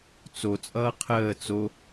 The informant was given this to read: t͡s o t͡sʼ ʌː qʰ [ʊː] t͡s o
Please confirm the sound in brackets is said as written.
no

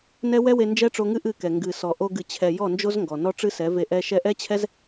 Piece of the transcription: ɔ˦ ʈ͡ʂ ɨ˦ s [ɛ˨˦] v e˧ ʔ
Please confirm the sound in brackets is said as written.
yes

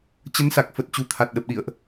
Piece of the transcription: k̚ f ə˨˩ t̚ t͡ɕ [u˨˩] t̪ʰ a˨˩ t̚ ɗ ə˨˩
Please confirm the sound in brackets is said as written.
yes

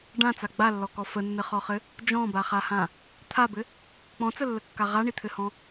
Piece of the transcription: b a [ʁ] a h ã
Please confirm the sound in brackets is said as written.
no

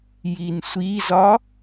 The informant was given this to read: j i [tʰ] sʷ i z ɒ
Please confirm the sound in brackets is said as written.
no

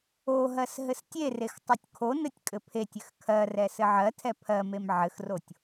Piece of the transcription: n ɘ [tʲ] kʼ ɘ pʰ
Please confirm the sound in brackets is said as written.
yes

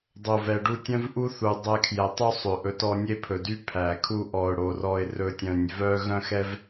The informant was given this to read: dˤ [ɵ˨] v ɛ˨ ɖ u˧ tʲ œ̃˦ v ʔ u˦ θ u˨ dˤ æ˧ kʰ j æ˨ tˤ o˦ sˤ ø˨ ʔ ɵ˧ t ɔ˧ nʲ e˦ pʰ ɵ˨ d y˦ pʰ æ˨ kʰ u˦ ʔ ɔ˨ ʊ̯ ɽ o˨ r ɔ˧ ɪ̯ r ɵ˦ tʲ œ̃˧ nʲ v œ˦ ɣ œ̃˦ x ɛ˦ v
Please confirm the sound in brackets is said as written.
no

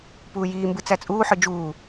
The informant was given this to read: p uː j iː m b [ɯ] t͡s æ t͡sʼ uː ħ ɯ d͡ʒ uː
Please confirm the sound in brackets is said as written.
yes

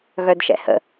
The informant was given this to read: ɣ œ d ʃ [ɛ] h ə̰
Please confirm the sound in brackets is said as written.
no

